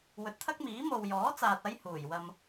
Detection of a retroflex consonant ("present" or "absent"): absent